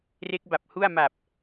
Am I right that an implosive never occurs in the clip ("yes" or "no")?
yes